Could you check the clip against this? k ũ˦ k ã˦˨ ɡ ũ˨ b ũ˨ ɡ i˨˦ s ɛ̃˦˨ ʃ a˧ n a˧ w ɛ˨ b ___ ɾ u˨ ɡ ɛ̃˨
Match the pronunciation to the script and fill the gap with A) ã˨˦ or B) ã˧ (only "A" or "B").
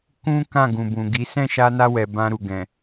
B